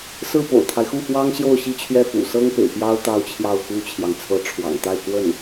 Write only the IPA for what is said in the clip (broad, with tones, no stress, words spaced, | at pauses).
sɹ̩˥˩po̰˨˩ʊ̯t̪ʰa˦ɪ̯xu˥˩ fwɑ˥ŋ ɕjo˥˧ʊ̯ɕi˥˧t͡ɕʰɥɛ˥˩ fṵ˨˩ sɤ˥ŋ pḛ˨˩ɪ̯pjɑ˥ʊ̯ t̪ɑ˥ʊ̯t͡ɕʰjɑ˥˩ʊ̯xu˥t͡ɕʰjɑ˨ŋ t͡sʰɤ˧˥ʈ͡ʂʰwɑ̰˨˩ŋt̪a˥˧ɪ̯ kwə˥˩n